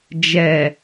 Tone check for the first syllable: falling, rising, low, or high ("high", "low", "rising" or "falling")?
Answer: low